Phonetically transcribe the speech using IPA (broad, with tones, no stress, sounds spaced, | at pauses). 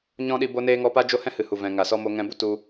ɲ ɔ̃˦ ɗ i˧ b o˦ n eː˦ ŋ ɔ˦ p a˦ d͡ʒ o˦ h ɛ̃˦ h ɨ˨ h u˨ v ɛ̃˨ ŋ a˨ s ɔ˧ m o˧ ŋ ɛ̃˧ b u˧ t u˧